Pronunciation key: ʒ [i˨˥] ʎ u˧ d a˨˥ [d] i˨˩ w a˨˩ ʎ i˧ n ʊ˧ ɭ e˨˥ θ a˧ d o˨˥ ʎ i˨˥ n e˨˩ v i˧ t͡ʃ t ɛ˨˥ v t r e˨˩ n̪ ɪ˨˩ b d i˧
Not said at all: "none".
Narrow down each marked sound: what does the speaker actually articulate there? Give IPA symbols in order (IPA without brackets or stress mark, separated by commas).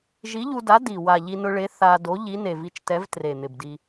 i˨˥, d